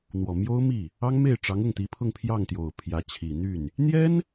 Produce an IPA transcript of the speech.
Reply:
n̪wɔ˨˩mjo˥ʊ̯mi˥˩ | ɑ˥ŋme˥˩ɪ̯ ʈ͡ʂɑ˧˥ŋʊ˥˩ŋt̪i˧˥pʰʊ˥˧ŋ pʰjɑ˥˩ŋt̪jo˨˩ʊ̯ pʰjä˧˥t͡ɕʰi˨˩n̪y˥˩n | n̪jɛ˥n

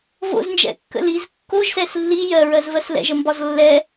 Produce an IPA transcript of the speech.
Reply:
vo̰znd͡ʒɛ̰kːə̰ liz kːoʒsɛs lːi jɜɹɜzvɜs lɛ̰ʒəmbɒz lːɛ

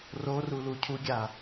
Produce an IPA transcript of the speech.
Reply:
roru lucʰuɡʲa

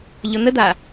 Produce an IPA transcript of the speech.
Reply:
ʎɔn̪əd̪a

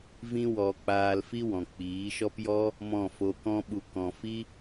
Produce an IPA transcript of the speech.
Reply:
vĩ˦wɔ˧ k͡paː˧lfi˦wɔ̃˨ k͡piː˨˦ʃɔ˦pjɔ˦ | mɔ̃˦˨ fo˧kɔ̃˦ɓu˧ kɔ̃˧ fi˦

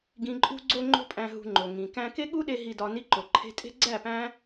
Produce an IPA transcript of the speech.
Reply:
ɡĩ˧ǃʼṳ˦ ɡ͡ǀo˦ŋ͡ǃo̤˦pʼæ̃˧ɦṳ˧ ŋ͡ǃo˨ŋĩ˨ kæ̃˧ke˦ɠu˦ɗe˧ ɦi˧dɒ˧ ni˧ǃo˨ǃʰe̤˧tʼe̤˦ ɡ͡ǀæ˦˨pæ̃˦

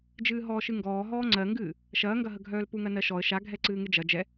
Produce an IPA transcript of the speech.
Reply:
d͡ʒɨːɦɔːʃɨŋɡɔː ɦɔːŋ͡ǀɜŋɡɨː | ʃɐːŋɡɐɦəɡʱœːl puŋɜnɜʃɔə̯ ʃaɡʱɛǀɨː ŋɨd͡ʒɐ d͡ʒɛ

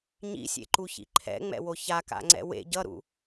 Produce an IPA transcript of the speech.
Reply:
ɲḭsʲḛǃuçḭ ǃʰɛ̰ŋ͡mɛ̰wo çaka̰ŋ͡ǀɛ̰ wḛ ɟʌɾṵ

